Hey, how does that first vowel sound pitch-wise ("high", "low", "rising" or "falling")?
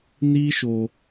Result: high